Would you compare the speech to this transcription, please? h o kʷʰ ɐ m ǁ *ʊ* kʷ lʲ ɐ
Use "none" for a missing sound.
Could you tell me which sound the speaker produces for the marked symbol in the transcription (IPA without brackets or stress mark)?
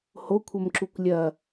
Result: u